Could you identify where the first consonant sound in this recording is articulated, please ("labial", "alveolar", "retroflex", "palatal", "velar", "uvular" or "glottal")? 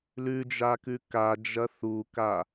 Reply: alveolar